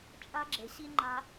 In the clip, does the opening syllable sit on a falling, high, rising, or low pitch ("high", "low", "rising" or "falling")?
high